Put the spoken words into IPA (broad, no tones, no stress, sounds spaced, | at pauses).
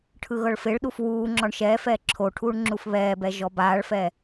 ʈʰ ɯ ɣ ɤ ɭ f e ɭ ɗ u f w uː ŋ͡ǁ ɔ ɳ ʃ ɛː f ɛː ǁʰ o ʈʰ uː ɳ ŋ͡ǁ u f β ɛː b ɛ ʒ ɔ b aː ɭ f ɛ